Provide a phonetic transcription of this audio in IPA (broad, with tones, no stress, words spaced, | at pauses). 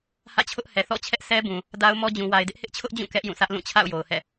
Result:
hä̰˦˨t͡ɕʰʊ˦ʔ hɛ˨θɔ̰˦˨t͡ɕʰɛ˦ʔ sɛ˦bũ˨ | da˦ʊ̯mɔ˦ d͡ʑũ˨wa˨ɪ̯dɪ˦ʔ hɪ˦ʔt͡ɕʰʊ˦ʔd͡ʑũ˦˨ kɛ˦ʔjũ˦˨sʰä˦ʔ lũ˦˨t͡ɕʰa̰˦˨ʊ̯ jo˨ʊ̯hɛ̰˦˨